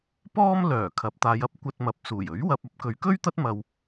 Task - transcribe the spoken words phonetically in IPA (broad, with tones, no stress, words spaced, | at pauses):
pɔː˥m lœː˨˩kʰɐ˨˥p̚t̪aː˨˧jɐ˥p̚ kʷɐ˧t̚mɐ˨p̚suː˨˩j ɵ˨˥ɥwɐ˧p̚ɐ˨˥p̚ kɵ˨˧ɥkɵ˥ɥt̪ɐ˥t̚ mɐ˧w